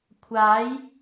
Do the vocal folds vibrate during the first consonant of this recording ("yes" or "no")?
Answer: no